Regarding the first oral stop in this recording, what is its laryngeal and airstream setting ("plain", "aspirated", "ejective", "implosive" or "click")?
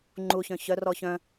click